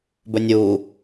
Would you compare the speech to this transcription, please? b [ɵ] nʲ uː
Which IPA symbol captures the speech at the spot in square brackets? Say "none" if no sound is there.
ɵ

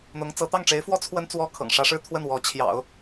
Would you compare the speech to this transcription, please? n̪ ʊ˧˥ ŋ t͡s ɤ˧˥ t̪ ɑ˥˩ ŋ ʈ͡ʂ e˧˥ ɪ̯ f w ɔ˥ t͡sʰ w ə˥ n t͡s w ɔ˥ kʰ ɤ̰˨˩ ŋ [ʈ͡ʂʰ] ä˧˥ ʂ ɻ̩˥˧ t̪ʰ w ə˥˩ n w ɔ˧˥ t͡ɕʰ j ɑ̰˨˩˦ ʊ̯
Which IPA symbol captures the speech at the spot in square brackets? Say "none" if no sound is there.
ʂ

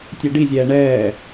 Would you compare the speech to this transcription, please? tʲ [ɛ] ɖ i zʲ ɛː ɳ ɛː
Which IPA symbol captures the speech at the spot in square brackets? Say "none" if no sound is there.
ɛ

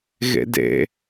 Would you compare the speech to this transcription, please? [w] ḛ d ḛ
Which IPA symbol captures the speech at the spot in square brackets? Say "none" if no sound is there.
ɣ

